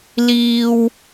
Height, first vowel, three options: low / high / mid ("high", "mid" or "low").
high